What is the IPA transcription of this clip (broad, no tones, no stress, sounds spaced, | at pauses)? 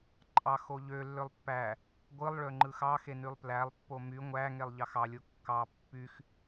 ǃʼ ɑ x o ʎ ø lː ø lˠ pː æ | ɡʷ ɯ lˠ ɭ ø ŋ͡ǃ ɯ x ɑ x e n y lˠ p l æ lˠ pː o m y ŋʷ æ ŋ e lˠ ʎ ɑ x ɑ lʲ o kː ɑ pː y x